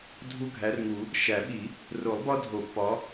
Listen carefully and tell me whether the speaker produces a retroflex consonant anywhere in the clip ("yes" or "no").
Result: no